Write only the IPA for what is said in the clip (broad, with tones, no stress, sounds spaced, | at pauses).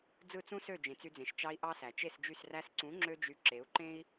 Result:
d͡z ɯ˦˨ t͡s ũ˦ s ø˦˨ d͡ʒ ẽ˨ t͡s y˧ d͡z ẽ˨ ʃ t͡ʃ ɑ˧ i̯ ʔ ɑ˦ s æ˨ t͡ʃ e˦˨ s d͡ʒ y˦˨ s r æ˧ s ǀ ũ˨˦ ŋ͡ǁ ø˦ d͡ʒ y˧ ǁ e˨˦ u̯ ǃ ẽ˦ i̯